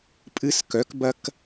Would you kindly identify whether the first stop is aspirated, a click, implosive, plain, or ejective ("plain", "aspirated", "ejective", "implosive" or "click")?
ejective